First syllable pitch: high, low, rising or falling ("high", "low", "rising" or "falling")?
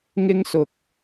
high